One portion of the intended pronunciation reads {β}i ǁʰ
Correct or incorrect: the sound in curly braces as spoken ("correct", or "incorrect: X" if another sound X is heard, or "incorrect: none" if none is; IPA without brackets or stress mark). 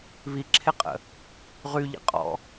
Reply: correct